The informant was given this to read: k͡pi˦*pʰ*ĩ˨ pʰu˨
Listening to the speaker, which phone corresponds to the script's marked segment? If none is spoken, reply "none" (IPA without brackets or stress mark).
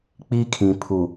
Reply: kʰ